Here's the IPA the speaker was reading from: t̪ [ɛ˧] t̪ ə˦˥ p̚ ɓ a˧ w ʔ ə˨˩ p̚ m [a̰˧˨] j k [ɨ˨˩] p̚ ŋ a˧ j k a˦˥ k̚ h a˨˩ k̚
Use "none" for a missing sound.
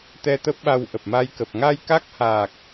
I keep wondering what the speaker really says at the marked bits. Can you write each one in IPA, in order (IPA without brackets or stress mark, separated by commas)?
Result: ɛ˧, a˧, ə˨˩